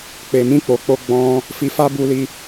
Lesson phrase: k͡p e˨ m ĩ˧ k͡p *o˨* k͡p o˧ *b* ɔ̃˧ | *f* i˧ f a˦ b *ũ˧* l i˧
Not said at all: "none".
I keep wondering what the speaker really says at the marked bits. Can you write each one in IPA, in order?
o˨, ɡ͡b, f, u˧

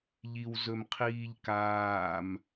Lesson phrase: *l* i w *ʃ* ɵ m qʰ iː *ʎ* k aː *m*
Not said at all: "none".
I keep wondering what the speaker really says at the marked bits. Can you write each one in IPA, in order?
ʎ, z, ʎ, m

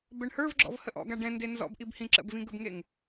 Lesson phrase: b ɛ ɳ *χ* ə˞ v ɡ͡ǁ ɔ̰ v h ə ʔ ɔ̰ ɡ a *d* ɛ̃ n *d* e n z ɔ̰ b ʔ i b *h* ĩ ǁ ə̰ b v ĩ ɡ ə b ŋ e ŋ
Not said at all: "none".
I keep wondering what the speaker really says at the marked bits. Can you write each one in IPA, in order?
h, ɖ, d, h

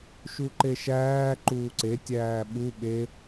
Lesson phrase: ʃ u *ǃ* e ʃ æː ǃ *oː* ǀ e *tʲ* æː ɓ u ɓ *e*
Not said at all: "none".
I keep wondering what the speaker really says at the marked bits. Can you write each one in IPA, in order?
ǃ, uː, tʲ, e

